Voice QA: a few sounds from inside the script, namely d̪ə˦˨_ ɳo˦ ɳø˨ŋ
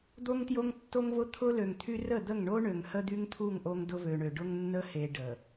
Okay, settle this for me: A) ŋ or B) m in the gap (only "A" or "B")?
A